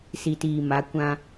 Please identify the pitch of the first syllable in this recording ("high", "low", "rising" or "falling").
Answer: low